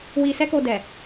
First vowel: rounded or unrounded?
unrounded